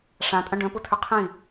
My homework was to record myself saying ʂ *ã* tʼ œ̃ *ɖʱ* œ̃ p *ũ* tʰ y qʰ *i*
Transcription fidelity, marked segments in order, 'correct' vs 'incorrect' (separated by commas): correct, incorrect, incorrect, incorrect